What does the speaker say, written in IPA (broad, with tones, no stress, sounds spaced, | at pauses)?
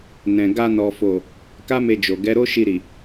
n ɛ̃˨ ɡ a˧ n ɔ˨ f o˨ | k a˦ m e˧ d͡ʒ o˨ ɡ ɛ˨˦ ɾ o˦ ʃ i˧ ɾ i˨